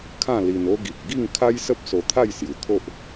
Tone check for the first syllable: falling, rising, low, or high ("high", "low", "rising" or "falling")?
falling